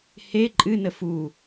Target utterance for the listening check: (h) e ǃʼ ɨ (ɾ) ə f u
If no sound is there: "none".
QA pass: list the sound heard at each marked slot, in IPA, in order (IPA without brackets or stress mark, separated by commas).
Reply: h, n